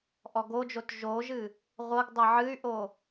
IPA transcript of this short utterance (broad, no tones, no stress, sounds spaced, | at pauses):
ʔ ɔ ɡ o d͡ʒ o t ʒ o ʒ ɨ | ʁʷ ɤ ɡ dˤ ɤ ʕ ɨ y̯ ʔ o